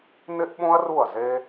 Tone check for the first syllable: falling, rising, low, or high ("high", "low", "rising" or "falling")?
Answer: high